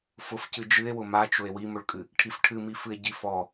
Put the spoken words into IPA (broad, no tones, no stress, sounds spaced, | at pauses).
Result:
f ʊ f c ɨ d͡ʒ ɨ e̯ w ʊ m a t͡ʃ ʊ e̯ w i m ʊ ɭ kʼ ɨ | ʈʰ i f ʈʰ ɨ m i f ɨ e̯ ɟ i f ɔ